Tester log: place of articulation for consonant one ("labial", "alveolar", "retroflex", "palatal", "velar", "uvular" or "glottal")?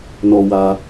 alveolar